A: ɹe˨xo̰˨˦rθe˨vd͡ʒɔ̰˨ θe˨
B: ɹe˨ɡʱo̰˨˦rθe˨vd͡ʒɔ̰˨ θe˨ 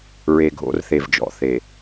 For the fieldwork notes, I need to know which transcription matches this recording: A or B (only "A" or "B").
B